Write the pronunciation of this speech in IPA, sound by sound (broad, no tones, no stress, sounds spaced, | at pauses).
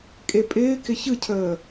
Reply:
kʼ e pʼ ɪː k ɪ ç ɯ cʰ əː